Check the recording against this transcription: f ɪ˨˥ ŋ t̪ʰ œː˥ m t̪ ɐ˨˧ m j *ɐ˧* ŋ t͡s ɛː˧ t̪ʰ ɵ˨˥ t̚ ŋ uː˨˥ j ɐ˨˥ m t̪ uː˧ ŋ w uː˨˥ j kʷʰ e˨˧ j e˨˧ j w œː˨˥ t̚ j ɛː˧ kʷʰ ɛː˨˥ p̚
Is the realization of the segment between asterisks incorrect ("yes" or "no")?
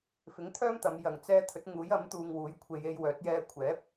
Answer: yes